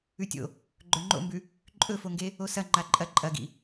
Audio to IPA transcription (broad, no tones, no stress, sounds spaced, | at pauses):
ʉ tʲ o̰ | ɡ͡ǃ ɵ ŋ͡ǃ o̰ m b ʉ | ǃʼ ɵ f o ŋ ɡ e | o s ɐ ŋ͡ǃ a ǃʼ ɐ ǃʼ ɐ ɡ ḭ